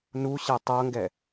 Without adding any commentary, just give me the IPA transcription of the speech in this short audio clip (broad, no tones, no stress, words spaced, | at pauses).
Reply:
nuɕɛ tˤɤŋɡɛ